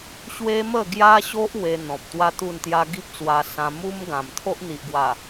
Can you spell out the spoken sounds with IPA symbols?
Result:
ɕ w e˦ m ə˥˧ ɡ j a˦ ɕ o˦ ʔ w e˧ n̪ ɔ̃˨ p̚ t̪ w a˦ t̪ u˥˧ n t̪ j a˦ ɡ i˦ p̚ t͡s w a˧ s ã˧ m u˦ m ɡ ã˨˩ m t̪ʰ o˦ ʔ n̪ i˨ ʔ ɡ w a˨˩

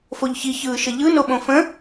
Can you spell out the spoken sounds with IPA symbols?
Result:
f o ʎ ç i ç ɯː ʃ ɘ ʎ ɯ n o ɓ õ f ə̃

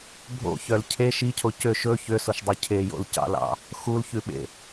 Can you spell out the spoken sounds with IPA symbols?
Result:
bʱ o̰ ç œ l cʰ e ʃ i cʰ o c ø ʃ ɵ ç ø s o ʃ dˤ y cʰ e j o̰ l c ɑ̰ l ɑ̰ | x u l ç ʉ ɓ ḛ

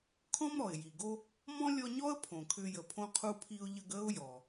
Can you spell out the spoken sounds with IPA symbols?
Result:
kʰ ɔ̃˥ m ɾ ɔ˩ ɪ̯ j i˩ ɡ o˦ | m ɔ̃˥ lʲ ɔ˦ ɲ ɔ˥ ə̯ pʰ õ˩ kʰ ʏː˦ j ə˨ pʰ õ˥ qʰ u˦ pʰ i˦ ʊ̯ ʎ ə˦ ɡ əː˥ ʊ̯ j ɔ˩

